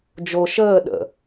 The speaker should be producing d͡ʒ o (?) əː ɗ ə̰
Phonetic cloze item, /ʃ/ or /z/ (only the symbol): ʃ